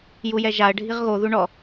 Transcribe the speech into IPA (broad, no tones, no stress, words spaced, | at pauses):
jujɛʒaə̯ ɖʱiʁɣo ðuɳɔ